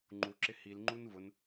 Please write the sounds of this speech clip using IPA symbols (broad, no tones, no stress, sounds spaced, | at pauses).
ŋ͡ǃ u ǁ ɪ h i l ŋ͡ǃ u n v ʊ n